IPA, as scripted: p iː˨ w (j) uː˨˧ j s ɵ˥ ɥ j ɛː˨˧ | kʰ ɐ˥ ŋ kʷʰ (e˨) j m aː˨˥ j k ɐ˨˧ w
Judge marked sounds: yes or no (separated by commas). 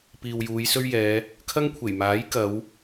yes, no